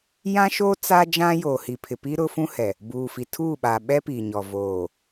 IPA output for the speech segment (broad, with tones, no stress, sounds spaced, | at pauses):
j ã˦ ʃ oː˦ t͡s a˦ d͡ʒ ã˦ j oː˨ h i˨ pʰ ɪ˨ p i˦ ɾ ʊ˦ f ũ˦ h ɛ˨ | b uː˨ f i˨ tʰ uː˦˨ ɓ a˨ ɓ ɛ˦ p iː˨ ɲ ɔ˨ v oː˨